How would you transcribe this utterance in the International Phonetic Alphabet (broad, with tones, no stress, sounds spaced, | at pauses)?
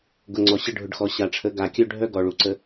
ɡ ʊ˨ ŋ͡ǀ ɔ˨ ɕ ə˧ ɖʱ ʊ˨ ɖ x ɔ˨ ɕ a˨ ʈ͡ʂʰ ə˨˦ ɡ a˨ kʲ œ˦ ɖʱ œ˦ ɡ ɔ˨ ɭ u˨ ǀ ə˦